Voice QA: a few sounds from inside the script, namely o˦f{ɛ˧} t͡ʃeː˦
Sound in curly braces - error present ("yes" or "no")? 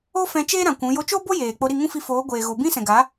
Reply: yes